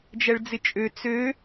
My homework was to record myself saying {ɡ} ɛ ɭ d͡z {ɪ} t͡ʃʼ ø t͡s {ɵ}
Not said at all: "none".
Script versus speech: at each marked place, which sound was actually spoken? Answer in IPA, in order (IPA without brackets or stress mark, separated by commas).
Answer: d͡ʒ, ɪ, ø